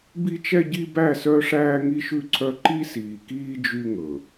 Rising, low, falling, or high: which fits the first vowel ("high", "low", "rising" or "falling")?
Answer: high